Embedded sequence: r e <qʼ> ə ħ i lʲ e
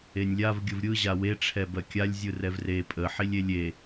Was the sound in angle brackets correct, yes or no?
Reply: no